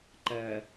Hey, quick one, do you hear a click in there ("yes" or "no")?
yes